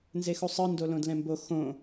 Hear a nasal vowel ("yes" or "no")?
yes